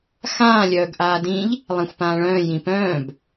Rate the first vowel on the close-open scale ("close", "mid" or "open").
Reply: open